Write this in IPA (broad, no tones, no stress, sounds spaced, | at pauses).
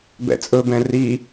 b ɛ̰ t͡sʼ ɵ b ɛ̃ r i